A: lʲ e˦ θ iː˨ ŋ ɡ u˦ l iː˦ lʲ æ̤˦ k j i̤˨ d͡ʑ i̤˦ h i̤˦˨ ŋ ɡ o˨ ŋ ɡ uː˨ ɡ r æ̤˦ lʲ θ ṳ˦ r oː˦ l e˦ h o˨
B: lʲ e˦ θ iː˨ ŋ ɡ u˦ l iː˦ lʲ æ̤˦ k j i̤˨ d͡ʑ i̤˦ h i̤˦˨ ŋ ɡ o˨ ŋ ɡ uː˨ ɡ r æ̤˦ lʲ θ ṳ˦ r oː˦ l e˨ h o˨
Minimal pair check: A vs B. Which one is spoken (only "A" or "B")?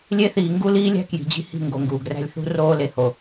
B